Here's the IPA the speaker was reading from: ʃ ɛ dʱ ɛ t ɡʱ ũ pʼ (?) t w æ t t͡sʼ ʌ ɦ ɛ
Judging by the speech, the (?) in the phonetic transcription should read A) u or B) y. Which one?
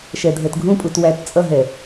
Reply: A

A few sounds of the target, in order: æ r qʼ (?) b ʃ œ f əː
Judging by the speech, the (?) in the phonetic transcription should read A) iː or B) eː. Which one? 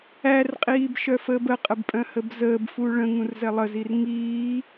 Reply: A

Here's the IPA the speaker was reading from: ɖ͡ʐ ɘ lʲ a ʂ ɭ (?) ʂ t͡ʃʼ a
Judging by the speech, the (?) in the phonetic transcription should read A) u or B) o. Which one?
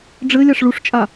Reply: A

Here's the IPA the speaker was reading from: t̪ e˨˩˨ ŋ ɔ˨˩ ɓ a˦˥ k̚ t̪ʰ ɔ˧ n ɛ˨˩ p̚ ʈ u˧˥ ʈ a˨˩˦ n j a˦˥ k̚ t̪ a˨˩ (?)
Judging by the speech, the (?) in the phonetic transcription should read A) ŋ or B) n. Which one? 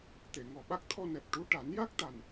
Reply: B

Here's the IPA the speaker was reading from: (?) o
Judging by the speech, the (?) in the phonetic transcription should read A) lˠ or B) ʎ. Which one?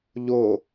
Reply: B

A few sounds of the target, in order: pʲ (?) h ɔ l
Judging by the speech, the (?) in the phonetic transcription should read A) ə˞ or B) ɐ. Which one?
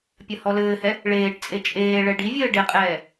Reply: B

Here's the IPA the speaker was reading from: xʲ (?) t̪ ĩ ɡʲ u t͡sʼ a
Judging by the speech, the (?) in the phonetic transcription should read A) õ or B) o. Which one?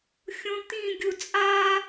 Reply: A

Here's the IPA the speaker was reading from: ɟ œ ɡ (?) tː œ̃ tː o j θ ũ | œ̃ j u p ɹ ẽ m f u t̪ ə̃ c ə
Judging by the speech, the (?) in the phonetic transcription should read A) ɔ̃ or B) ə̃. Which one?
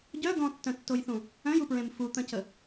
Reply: A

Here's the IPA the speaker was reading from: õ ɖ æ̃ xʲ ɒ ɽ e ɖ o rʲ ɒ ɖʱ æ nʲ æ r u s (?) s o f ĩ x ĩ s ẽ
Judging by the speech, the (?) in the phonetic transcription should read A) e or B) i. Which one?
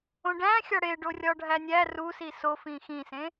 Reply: B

